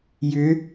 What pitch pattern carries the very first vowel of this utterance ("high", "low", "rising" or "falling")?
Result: rising